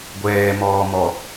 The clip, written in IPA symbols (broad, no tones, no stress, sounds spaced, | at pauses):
ɡʷ ɛː m ɔː m ɔ